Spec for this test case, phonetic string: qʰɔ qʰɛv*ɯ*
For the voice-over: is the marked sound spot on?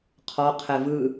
yes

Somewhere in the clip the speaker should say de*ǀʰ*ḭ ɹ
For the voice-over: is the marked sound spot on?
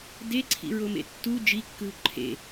yes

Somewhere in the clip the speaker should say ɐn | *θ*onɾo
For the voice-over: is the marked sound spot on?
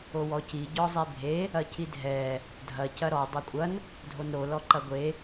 no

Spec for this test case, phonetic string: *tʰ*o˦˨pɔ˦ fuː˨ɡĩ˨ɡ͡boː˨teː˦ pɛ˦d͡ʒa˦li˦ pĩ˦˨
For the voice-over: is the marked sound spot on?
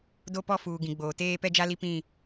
no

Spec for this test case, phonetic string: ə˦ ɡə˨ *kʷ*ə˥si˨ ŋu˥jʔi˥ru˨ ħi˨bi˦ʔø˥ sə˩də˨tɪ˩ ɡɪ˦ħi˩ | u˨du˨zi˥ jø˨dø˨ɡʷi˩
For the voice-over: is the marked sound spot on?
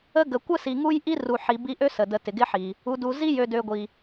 yes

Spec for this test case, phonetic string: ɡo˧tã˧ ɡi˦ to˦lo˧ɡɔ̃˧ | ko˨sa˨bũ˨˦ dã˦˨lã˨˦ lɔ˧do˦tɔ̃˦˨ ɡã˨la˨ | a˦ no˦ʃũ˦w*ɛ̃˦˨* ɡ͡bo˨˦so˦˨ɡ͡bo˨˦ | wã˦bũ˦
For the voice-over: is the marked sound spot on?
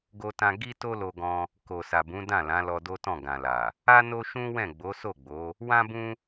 yes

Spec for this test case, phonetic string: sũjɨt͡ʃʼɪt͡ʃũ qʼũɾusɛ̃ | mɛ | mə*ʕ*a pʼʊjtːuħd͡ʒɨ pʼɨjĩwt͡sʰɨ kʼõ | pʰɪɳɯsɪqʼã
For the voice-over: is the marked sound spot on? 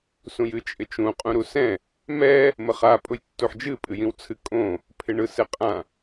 no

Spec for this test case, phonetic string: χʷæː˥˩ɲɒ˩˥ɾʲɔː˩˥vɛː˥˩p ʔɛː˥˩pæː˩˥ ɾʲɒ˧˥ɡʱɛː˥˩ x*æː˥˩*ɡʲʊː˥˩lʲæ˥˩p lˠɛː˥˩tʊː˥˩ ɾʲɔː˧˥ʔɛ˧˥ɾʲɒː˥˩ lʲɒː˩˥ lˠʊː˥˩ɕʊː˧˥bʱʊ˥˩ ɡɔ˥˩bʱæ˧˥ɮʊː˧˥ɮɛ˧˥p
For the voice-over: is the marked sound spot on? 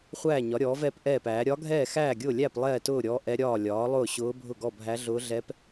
yes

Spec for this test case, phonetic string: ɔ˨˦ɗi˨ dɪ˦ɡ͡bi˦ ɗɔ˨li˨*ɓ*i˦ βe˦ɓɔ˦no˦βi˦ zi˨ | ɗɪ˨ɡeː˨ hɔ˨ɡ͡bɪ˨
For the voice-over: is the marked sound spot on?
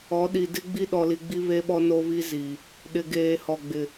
no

